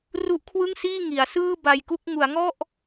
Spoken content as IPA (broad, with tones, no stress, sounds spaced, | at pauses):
r u˦˥ ʔ kʰ w ɯ˥˩ ŋ s iː˥˩ ŋ i˩˦ a̯ s ɯː˥˩ b a˧ j k u˥˩ k̚ ŋ u˩˦ a̯ ŋ ɔ˥˩ ʔ